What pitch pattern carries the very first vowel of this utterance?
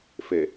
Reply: low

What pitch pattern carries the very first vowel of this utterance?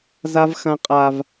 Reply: high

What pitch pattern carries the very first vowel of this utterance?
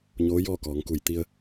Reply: rising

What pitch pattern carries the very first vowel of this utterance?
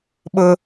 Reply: high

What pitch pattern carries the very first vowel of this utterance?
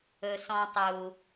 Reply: low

